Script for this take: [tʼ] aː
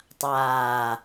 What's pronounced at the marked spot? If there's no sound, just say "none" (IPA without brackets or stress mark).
tˤ